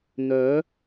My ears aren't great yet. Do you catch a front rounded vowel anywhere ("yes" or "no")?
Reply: yes